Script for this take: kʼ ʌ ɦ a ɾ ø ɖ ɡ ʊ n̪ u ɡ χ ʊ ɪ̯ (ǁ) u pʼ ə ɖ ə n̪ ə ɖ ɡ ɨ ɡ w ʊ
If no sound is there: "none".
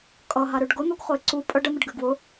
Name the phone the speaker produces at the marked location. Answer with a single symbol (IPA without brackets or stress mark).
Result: ǀ